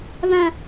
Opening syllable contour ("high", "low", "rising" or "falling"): low